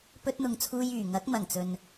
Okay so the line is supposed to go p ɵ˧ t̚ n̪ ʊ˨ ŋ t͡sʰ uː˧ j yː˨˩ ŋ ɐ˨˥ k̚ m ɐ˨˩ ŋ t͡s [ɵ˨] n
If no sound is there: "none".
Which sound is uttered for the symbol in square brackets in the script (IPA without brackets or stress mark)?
ɵ˨